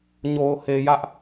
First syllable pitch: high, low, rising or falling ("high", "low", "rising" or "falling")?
low